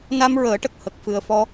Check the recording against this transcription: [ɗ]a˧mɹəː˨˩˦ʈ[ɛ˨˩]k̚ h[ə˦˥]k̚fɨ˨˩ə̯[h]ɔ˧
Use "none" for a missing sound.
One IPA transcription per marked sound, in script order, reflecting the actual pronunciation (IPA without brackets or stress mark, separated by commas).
n, ə˨˩, ə˨˩, f